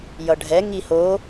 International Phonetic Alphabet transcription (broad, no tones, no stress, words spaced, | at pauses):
jʌɖʱɛ ŋiho